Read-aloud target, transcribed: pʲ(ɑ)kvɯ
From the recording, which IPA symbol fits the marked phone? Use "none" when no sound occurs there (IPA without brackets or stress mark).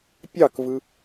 ɑ